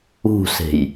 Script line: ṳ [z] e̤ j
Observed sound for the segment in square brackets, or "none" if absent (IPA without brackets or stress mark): s